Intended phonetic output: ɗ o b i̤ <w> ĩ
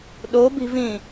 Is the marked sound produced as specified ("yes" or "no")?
no